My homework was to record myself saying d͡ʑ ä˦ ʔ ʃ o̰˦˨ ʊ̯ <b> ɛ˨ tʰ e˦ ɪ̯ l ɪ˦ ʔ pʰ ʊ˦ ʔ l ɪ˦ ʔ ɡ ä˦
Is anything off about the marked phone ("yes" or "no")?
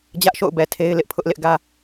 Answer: no